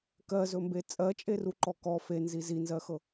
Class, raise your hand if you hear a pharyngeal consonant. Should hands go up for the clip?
no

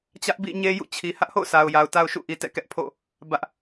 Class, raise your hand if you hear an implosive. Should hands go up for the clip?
no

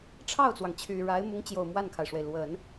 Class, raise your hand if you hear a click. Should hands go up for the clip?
no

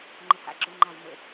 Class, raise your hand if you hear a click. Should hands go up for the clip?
yes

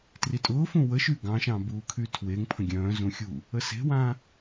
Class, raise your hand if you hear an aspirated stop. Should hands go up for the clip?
yes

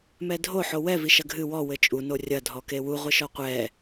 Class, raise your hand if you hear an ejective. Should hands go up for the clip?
yes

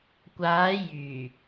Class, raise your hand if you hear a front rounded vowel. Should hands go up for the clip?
yes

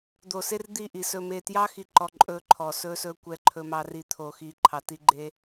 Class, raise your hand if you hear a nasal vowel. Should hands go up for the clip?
no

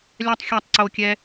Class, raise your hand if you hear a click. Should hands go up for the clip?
yes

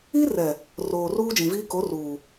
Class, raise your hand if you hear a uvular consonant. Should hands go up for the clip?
no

